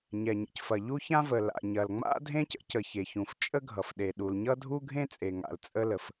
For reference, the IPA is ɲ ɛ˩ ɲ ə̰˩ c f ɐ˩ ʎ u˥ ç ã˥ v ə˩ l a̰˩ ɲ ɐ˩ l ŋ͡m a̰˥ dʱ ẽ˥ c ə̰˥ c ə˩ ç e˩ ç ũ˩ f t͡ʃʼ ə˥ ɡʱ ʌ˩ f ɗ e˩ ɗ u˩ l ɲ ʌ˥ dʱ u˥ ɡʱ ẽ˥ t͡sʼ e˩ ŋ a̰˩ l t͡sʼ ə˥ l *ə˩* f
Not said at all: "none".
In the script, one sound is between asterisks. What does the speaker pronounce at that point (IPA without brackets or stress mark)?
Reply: ə˩